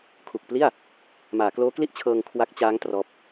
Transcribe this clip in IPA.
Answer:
kʰ u˨˩ k̚ p l i˥˩ a̯ | m aː˩˦ k l oː˦˥ k l i˥˩ ʔ t͡ɕʰ ɤː˧ ŋ kʰ w a˦˥ k̚ t͡ɕ aː˦˥ ŋ t r ɔː˦˥ p̚

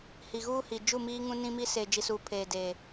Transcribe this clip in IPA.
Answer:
h i˨ ɣ uː˦ h i˨ d͡ʒ u˦˨ m iː˦ ŋ ũ˦ n ĩ˦ m i˦ s eː˨ d͡ʒ i˨ s uː˨ pʰ eː˨ d eː˨

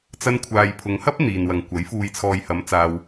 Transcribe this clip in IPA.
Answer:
t͡s ɐ˧ n kʷʰ aː˨ j pʰ ʊ˨˧ ŋ h ɐ˥ p̚ n̪ iː˨ n w ɐ˨ ŋ kʷ ɐ˨˥ j f uː˨ j t͡sʰ ɔː˨ j h ɐ˨˥ m t͡s aː˧ w

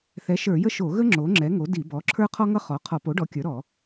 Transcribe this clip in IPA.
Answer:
θ ɛ˩˥ ʃ ə˞˧˩˧ j ə˥ ʃ o˧˩˧ ɣ ə˥ ŋ͡ǁ o˩˥ ŋ͡ǁ ɛ˩˥ ŋ o˩˥ d i˧˩˧ b ɔ˩˥ ǁʰ ə˞˥ qʰ ɔ˥ ŋ ʌ˥ χ ɔ˩˥ qʰ ɔ˧˩˧ p o˩˥ ɖ ɔ˩˥ kʲ ə˞˩˥ ɾ ɔ˧˩˧

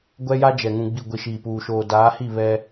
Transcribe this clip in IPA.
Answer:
ɡʷ ɛ˦ j a˦ d͡ʒ ɛ˨ ŋ ũ˨ ɡ͡b i˨ ɡʷ i˨ ʃ iː˨ p uː˨ ʃ oː˨ d aː˨˦ h i˦˨ β ɛ˦

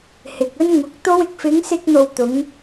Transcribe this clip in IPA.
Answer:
h ɪ˨ k̚ ɵ˥ n ŋ ʊ˨˥ k̚ t̪ o˥ w ɪ˨˥ k̚ f ɪ˨˧ ŋ s ɪ˧ k̚ n̪ o˨ w t̪ ʊ˨˧ ŋ

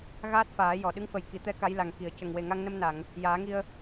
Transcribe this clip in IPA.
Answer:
ɣ aː˦˥ t̚ f aː˨˩˦ j ɔ˨˩˨ ɗ ɨ˧˥ ŋ f ə˨˩ j k i˨˩˨ t̪ ɛ˧˥ k a˧˥ j l a˨˩ ŋ k i˨˩˨ ə̯ c ə˨˩ ŋ w e˨˩ ŋ a˧ ŋ n ə˧ m n a˨˩˨ ŋ | j aː˨˩˦ ŋ i˧ ə̯

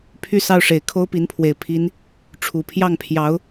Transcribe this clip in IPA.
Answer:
pʰ y˥˧ s ɑ˥˩ ʊ̯ ʂ e˨˩ ɪ̯ kʰ o˥ ʊ̯ p i˧˥ n pʰ w e˨˩ ɪ̯ pʰ i˧˥ n | ʈ͡ʂʰ u˨˩ pʰ j ɑ˥˩ ŋ pʰ j ɑ˧˥ ʊ̯

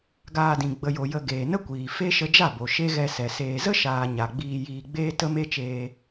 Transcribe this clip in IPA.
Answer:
ɡ aː˧ d ĩ˨ ɡ͡b ə˨ j o˨ j ə˧ ɡ eː˨ n ə˦ kʷ iː˨ f e˦ ʃ ə˧ d͡ʒ a˦˨ b o˨ ʃ e˦ ɣ ɛ˧ s ɛ˨ s eː˨ z ə˦ ʃ aː˨ ɲ a˨ ɡ͡b iː˧ j iː˧ ɡ͡b eː˦ t ə˦ m e˦ t͡ʃ eː˧

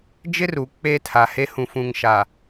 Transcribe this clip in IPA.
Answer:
d͡ʒ ɪ˦ r u˨ k͡p eː˦ tʰ a˨ h e˦ h ũ˨ f ũ˨ ŋ ʃ a˨

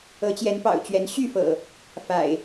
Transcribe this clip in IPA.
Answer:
ɤ˨˦ t͡ɕ j ɛ˨˦ n p ɑ̰˨˩ ʊ̯ t͡ɕ ɥ ɛ˨˦ n ɕ y˥˨ f ɤ̰˨˩ | f a̰˨˩ ɪ̯

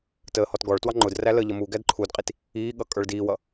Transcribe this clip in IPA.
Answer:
t əː h ɔ t ɡ ɔ ɭ t w ɑ ŋ͡ǃ ʊ d r æ l ə ʎ ʌ m u ɡ æ d ǃʰ u d qʼ i t | iː ɠ ʌ kʼ ə˞ ɭ d iː w ʌ

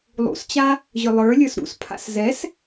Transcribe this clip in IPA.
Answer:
lˠ ṵ s t͡ɕ a | ʑ ʏ lˠ ə˞ lʲ ə˞ s ɾ ṵ s pʰ a̰ s z ɛ s

